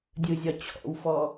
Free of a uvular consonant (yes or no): yes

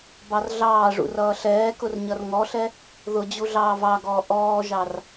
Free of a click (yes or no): yes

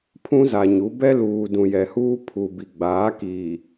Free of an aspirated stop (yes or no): no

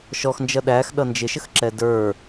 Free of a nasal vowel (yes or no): yes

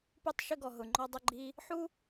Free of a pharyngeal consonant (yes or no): no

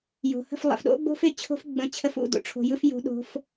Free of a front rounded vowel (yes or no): yes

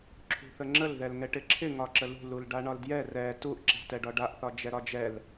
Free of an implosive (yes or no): yes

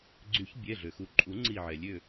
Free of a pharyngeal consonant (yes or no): no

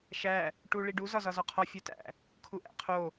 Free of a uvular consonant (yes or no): no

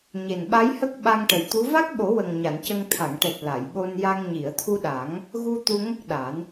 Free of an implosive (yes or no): no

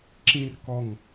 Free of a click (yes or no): no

